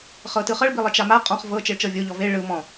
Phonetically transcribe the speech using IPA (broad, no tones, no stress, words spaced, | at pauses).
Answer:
χɤtɯχɤɭ bilˠet͡ʃama qʼɔ̃χ vɤ t͡ʃeɭt͡ʃɤvʲo ʎɔve ɭɯ mɔ̃